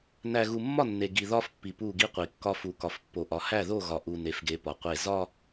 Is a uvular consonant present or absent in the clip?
present